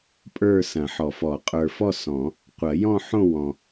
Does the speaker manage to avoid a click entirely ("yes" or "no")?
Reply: yes